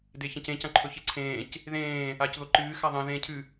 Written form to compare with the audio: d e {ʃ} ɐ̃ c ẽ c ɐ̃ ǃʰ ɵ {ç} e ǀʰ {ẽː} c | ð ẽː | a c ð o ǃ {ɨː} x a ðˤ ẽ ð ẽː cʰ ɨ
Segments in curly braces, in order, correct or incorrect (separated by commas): incorrect, correct, correct, correct